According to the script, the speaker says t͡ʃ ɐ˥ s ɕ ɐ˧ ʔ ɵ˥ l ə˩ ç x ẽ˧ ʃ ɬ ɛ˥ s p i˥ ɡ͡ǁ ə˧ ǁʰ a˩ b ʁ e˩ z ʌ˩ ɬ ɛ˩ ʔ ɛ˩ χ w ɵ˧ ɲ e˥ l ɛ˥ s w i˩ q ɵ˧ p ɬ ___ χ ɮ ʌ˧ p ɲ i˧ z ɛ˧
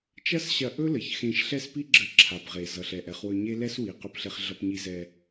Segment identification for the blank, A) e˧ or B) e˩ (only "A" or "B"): A